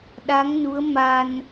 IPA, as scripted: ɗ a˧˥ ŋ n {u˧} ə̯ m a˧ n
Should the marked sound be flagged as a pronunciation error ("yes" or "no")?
yes